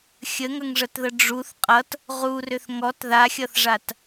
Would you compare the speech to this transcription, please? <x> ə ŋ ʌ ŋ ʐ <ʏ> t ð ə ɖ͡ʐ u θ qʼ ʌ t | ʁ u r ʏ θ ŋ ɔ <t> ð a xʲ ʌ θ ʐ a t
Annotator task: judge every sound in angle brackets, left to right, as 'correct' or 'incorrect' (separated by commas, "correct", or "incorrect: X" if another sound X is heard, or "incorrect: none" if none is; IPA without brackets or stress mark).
incorrect: xʲ, incorrect: ə, correct